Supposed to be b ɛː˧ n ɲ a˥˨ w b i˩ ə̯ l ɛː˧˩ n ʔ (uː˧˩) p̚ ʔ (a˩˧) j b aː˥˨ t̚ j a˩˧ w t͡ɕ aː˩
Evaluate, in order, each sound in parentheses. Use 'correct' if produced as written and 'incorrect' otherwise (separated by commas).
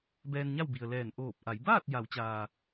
incorrect, correct